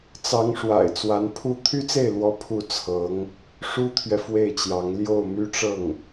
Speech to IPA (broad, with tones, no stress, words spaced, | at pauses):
t͡sɑ˧˥ŋʂwa̰˨˩ɪ̯ t͡swa˧˥npʰu˥ t̪ʰy˥t͡se˥˩ɪ̯lwɔ˧˥ pʰu˥˩t͡sʰɤ˧˥ŋ | ʂu˥t̪ʰɥɛ˨ fwe˥˩ɪ̯t͡ɕjɑ˧˥ŋ ljo˥˩ʊ̯my˥ʈ͡ʂɤ˥˩ŋ